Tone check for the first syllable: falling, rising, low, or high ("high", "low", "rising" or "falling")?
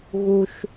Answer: low